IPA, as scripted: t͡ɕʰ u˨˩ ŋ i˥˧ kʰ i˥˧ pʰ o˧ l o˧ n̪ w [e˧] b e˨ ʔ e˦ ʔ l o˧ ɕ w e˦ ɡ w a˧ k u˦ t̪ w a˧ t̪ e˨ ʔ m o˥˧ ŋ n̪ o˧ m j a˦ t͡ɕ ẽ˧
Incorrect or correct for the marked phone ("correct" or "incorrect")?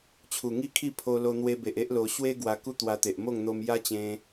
correct